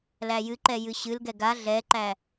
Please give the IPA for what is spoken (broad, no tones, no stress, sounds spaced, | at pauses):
l æ j ɨ ǃ ɛ j ɨ ɕ ɨ l ɡ ɛ ɡ a ɮ ɛ ǃ æ